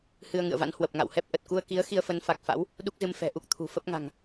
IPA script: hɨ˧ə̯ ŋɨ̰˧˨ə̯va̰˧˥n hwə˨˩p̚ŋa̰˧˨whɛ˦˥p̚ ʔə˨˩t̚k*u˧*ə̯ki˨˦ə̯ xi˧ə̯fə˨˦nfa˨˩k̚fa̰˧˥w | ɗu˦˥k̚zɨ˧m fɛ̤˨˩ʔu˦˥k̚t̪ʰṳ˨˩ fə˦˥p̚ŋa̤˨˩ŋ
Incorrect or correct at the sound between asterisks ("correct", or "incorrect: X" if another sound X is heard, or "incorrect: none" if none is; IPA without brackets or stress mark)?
correct